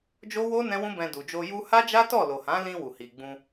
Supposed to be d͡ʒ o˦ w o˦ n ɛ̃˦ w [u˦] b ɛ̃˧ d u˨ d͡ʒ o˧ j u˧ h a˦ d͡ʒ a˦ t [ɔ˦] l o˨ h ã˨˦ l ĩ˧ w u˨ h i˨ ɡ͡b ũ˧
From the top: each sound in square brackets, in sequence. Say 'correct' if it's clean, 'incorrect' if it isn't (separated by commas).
incorrect, incorrect